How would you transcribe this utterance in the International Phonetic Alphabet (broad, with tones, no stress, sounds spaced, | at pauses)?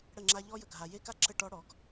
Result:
ɽ ə˦˨ ŋ͡ǁ a˦ ʎ ɔ˦ j ə˨ ɡʱ a˨ j e˦ k a˦ ǁ ə˦˨ ʈ ɔ˦ ɽ ɔ˨˦ ɡ